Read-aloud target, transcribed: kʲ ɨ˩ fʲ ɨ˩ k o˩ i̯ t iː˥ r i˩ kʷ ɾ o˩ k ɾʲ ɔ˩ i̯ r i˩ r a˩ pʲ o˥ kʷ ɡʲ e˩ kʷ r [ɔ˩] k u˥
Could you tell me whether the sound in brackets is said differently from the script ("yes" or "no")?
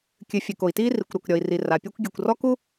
yes